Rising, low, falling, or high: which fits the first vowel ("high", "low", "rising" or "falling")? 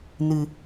low